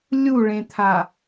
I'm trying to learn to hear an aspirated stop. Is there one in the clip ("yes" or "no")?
yes